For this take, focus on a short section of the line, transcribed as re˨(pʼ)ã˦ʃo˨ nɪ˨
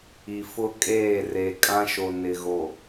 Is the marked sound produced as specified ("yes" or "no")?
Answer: no